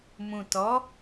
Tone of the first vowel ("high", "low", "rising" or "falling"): low